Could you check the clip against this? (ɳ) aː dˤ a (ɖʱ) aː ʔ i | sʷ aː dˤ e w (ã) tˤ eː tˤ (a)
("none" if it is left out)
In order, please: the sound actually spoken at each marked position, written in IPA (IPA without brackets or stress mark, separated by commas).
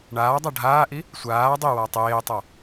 ɳ, ɖʱ, a, a